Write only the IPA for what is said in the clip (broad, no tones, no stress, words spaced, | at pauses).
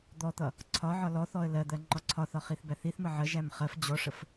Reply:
d̪ɔt̪ʌ | ǀʰɒʕɒ lɔθɔə̯ lɜd̪ɜ ŋ͡ǃɒǀʰɒθɒ χiθbæθiθmə ʕəʒæm χɜf d͡ʑɔʂəf